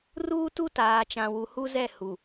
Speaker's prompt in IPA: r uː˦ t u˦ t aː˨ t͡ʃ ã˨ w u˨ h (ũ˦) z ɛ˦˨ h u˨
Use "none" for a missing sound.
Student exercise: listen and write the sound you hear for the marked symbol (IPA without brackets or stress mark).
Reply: u˦